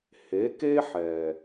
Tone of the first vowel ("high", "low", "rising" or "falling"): rising